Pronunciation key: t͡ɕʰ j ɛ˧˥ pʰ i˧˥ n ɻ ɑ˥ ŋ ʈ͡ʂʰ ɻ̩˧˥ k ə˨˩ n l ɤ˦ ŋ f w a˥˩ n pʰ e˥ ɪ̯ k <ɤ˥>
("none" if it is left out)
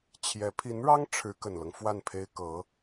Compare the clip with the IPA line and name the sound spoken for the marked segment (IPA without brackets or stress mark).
ɤ˧˥